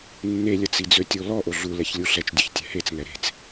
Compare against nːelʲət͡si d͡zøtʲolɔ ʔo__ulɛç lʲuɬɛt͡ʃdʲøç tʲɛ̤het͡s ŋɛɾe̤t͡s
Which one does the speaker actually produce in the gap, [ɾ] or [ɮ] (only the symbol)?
ɮ